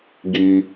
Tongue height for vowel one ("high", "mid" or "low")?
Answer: high